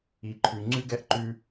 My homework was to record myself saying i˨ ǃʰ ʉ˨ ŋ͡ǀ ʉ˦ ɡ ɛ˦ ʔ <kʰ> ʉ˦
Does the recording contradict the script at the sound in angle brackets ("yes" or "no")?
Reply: yes